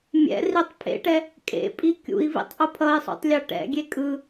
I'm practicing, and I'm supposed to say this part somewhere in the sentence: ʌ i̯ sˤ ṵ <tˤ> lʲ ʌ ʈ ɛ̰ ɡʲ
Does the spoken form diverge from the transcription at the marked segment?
no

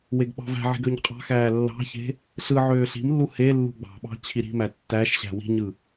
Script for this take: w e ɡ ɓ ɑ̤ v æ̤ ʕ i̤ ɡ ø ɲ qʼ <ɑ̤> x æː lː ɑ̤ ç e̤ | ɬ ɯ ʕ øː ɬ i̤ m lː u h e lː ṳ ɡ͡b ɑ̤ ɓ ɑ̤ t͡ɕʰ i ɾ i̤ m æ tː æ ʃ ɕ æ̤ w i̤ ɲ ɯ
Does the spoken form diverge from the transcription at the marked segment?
no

